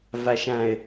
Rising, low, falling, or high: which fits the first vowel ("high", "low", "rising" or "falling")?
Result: low